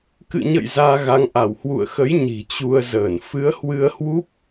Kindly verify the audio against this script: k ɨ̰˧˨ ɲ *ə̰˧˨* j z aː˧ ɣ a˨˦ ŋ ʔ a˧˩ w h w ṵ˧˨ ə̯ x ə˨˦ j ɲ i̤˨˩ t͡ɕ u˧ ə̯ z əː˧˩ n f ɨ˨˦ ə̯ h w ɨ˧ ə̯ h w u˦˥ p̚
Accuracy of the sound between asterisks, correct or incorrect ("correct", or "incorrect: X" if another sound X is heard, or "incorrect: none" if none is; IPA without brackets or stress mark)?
correct